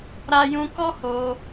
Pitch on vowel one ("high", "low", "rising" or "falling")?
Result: high